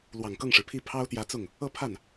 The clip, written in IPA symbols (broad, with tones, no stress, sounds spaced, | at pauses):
l w ɑ˨˩ ŋ k ɤ˥˩ ŋ ʂ ɻ̩˩ pʰ i˥˩ pʰ ɑ˥ ʊ̯ t̪ j ä˧˥ t͡s ʊ˥˩ ŋ | ɤ˥˧ pʰ a˥˩ n